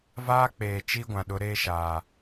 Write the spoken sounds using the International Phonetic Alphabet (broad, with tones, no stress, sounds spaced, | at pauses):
v aː˦ k͡p eː˨ t͡ʃ i˦ ɡʷ ã˨ ɗ ʊ˨˦ ɾ eː˦ ʃ aː˨